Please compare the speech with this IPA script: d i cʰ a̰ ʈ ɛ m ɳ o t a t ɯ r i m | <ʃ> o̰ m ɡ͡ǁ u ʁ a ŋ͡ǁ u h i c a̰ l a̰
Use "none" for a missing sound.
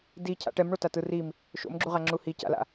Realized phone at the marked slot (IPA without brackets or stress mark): ʃ